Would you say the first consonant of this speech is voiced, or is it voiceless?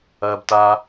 voiced